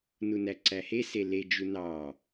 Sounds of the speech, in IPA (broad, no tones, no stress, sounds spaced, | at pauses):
n u n æ ǀ æ h e s e l e d͡ʒ u n ɑ